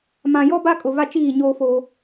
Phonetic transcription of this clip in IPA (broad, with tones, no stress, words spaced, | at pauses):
mã˨jɔ˦ ba˦ kʼʊ˨va˦ t͡ʃiː˦˨ ɲoː˦foː˦